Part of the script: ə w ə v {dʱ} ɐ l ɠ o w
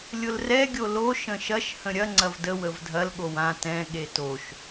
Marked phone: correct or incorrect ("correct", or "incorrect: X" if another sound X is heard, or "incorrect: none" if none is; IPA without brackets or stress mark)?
correct